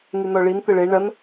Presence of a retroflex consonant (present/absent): present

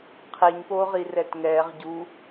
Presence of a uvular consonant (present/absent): present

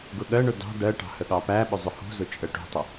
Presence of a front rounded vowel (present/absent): absent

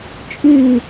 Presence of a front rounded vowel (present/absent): present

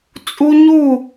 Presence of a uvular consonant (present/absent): absent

